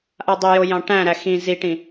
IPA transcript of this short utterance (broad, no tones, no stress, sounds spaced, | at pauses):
ʔ a dˤ ɛ j o j ɑ̃ ʈ æ̃ ɾ æ x ĩ z i ʈ ĩ